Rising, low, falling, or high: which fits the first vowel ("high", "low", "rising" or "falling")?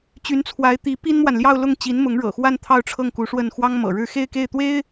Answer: rising